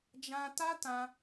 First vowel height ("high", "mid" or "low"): low